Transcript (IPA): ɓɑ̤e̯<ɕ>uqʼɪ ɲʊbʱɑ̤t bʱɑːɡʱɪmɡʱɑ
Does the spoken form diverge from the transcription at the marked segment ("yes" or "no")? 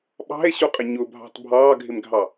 no